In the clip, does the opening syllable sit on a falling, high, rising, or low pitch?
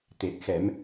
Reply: low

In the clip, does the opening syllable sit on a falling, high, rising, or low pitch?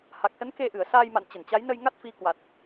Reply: low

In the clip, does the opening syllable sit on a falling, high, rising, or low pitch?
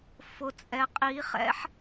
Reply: rising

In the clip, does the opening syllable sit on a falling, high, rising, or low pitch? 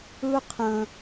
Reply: high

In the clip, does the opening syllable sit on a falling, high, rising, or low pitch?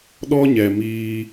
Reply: high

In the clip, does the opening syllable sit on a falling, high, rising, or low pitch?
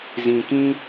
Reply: low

